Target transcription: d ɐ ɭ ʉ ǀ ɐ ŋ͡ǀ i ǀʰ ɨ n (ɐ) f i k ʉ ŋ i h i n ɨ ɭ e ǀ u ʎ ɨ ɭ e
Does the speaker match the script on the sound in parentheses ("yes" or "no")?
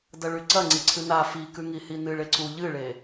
no